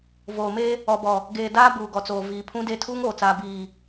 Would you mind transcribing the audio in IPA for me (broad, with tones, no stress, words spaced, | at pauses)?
voː˨me˦ | ɔ˨bɔ˨ | ɡeː˨ daː˦ buː˨ɡɔ˨t͡soː˨ viː˨pʰũ˦de˦ tʰuː˦ŋoː˨t͡saː˨ biː˨